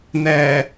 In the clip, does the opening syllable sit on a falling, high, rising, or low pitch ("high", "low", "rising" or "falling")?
low